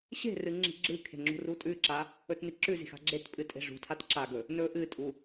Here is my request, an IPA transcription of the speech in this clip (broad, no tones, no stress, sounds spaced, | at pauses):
ɕ e̤ r ɨ ŋ͡ǁ i̤ ɡ͡ǁ ɨ kʰ e̤ ŋ͡ǁ ṳ r u tʼ ʉ ǁ a | ɵ t n i ǁ ʉ z i̤ x a̤ ɡ͡ǁ e t pʼ ɨ tʼ e̤ ʐ ṳ tʰ a t ǁ a ɡ ɵ | n ɵ ʔ ɨ tʼ u